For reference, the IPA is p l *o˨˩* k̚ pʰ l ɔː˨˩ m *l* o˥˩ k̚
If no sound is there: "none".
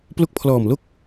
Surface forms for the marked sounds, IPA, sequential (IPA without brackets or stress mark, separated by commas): o˦˥, l